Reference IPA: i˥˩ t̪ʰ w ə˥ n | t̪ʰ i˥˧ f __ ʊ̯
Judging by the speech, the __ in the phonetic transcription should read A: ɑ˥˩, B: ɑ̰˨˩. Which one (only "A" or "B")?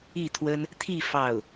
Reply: A